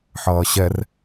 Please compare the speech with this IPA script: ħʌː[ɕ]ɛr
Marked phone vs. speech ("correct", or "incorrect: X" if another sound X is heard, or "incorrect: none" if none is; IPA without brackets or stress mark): correct